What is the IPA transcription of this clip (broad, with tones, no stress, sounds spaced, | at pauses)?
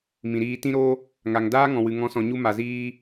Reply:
m ĩ˨ ɾ iː˧ t ĩ˦ ɾ o˦ | ŋ a˨ ŋ d aː˦ ŋ ɔ̃˨ w ɨ˨ ŋ ɔ̃˨˦ s ɔ̃˨ ɲ u˧ m a˨ z iː˧